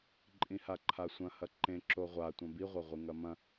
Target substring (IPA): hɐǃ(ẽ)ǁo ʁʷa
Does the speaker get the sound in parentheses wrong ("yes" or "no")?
no